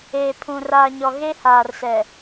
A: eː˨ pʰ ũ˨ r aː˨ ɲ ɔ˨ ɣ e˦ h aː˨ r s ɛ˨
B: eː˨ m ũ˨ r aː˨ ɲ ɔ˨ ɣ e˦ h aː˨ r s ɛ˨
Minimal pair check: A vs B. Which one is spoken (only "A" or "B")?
A